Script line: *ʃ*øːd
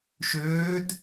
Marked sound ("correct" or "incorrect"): correct